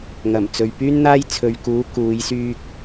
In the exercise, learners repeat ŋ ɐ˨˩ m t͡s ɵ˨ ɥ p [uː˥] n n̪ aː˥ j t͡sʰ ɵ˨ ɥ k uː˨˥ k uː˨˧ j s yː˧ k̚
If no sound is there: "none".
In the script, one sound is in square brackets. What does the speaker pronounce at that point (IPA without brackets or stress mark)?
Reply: yː˥